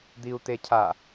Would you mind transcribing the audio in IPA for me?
d̪ i u̯ t̪ e cʰ a

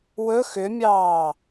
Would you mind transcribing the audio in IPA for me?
w ɵ x ʏ mʲ ɑː

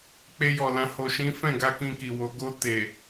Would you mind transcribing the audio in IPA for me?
k͡p e˧ j ɔ˨ l ã˧ h o˨ ʃ ĩ˨˦ f ɛ̃˦˨ ɡ a˧ k ĩ˧ k i˨ w o˨˦ ɡ o˧ t e˨

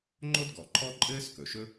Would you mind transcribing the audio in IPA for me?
ŋ͡ǃ o˥ d ɡ ɔ˩ ǃʰ ɔ˥ ǃʼ ɘː˥ s k ɵ˩ ʃ ɵ˥

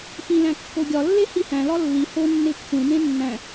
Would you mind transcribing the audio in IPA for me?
f ĩ l æ̃ kː o ɡʲ ɒ lː e h i h æ̃ l ɒ lː i h o nː e kʷʰ ẽ m ẽ nː æ̃

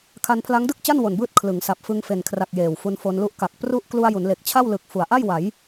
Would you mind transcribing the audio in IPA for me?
kʰ a˧ n pʰ l a˦˥ ŋ d ɯ˥˩ k̚ t͡ɕ a˥˩ n w o˨˩ n b ɯː˥˩ t̚ kʰ l ɯ˩˦ ŋ s a˨˩ p̚ f ɯ˧ ŋ f e˨˩ n kʰ r a˨˩ k̚ j eː˨˩ w f u˧ n f o˧ n l u˥˩ ʔ k a˨˩ k̚ p r u˦˥ ʔ k l u˧ a̯ j u˩˦ n l e˨˩ k̚ t͡ɕʰ a˥˩ w l ɯ˨˩ k̚ f u˩˦ a̯ ʔ a˥˩ j w a˩˦ j

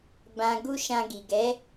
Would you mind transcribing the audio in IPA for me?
b ã˨ ɡ u˧ ʃ ã˧ ɡ i˨ ɡ ɛ˨˦

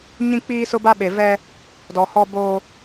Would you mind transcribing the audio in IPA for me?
ɲ ĩ˦ k͡p iː˦ s ʊ˦ b a˦ ɓ e˨ v ɛ˦ | d ɔ˨ h ɔ˦ b oː˦

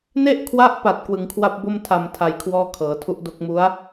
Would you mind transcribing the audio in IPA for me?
n e˥˩ ʔ kʰ w a˦˥ ʔ p a˨˩ t̚ k w ɯ˩˦ ŋ kʰ w a˥˩ p̚ b o˥˩ m tʰ a˨˩ m tʰ a˧ j kʰ w ɔː˥˩ kʰ ɤː˩˦ tʰ u˦˥ ʔ d o˦˥ k̚ m u˦˥ a̯

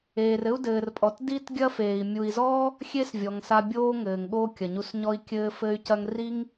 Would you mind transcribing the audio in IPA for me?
eː˨ r ɘ˦ u̯ d ɘː˨ r pʼ ɔ˨ t d i˦ t ɡʲ ɐ˦ f eː˨ i̯ mʲ u˨ i̯ z ɔ˦ | xʲ e˦ s vʲ ɔ˨ ŋ s a˧ bʲ oː˦ ŋ ɘː˨ ŋ ɠ oː˦ kʲ ɐ˨ ɲ u˧ s ɲ ɔ˦ i̯ kʲ ɘː˧ f ɘ˦ y̯ c ɐ˦ ŋ r i˦ ŋ

